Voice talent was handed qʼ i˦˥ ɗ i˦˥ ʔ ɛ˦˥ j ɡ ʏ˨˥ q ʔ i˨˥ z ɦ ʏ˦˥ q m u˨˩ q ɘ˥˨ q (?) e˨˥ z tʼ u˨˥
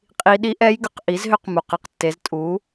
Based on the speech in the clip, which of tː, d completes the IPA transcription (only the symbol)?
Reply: tː